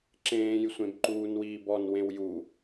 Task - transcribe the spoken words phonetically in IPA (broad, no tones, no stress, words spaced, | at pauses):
ǁẽːj sʷẽbǃuːnwiːbɔn wẽwju